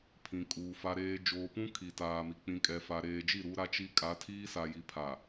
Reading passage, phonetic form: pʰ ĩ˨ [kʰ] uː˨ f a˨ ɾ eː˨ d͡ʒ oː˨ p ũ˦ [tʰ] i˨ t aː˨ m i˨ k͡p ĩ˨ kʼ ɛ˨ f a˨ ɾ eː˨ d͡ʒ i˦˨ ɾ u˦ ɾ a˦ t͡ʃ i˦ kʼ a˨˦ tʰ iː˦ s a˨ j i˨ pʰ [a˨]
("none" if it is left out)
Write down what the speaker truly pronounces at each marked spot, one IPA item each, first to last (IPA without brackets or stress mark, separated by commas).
kʼ, kʰ, a˨